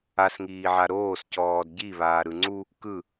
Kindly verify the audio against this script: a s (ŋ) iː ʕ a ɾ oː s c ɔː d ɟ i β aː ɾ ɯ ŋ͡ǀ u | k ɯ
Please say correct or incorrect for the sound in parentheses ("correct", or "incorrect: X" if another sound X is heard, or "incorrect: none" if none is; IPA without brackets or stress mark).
correct